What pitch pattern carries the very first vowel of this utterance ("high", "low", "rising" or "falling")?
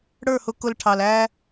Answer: falling